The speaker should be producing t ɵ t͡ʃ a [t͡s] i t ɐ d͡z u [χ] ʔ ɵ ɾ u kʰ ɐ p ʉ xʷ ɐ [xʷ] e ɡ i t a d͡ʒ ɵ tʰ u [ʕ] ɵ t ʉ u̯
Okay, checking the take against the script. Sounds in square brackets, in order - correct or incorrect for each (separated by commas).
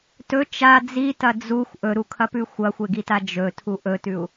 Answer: incorrect, incorrect, correct, incorrect